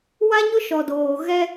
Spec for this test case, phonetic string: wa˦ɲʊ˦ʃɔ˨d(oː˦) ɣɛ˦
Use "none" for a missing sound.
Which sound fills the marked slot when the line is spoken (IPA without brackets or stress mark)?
oː˨